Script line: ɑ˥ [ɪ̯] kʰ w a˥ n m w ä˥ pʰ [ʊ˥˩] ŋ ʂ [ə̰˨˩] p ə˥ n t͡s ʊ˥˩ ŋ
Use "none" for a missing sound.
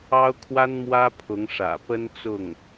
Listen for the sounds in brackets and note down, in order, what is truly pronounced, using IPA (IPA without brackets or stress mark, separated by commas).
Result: ʊ̯, ʊ˧˥, ä̰˨˩